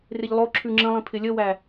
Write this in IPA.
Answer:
r ɪ ʎ lˠ o ǁʰ ʉ ŋ͡ǁ ə̃ lˠ ĩ pʰ ɪ lʲ ə w æ

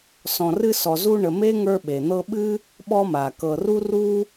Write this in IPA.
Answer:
s ɔ̃˨ r ɨ˦ s ɔ˨ z u˦ ɳ ə˨ m e˥ ŋ ə˞˦ ɓ e˩ n̪ ɤ˦ ɓ ɨ˥ | ɓ ɔ˦ m a˩ k ɤ˨ r u˥ r u˥

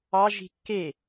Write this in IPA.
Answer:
ɑ ʒ i̤ kː e

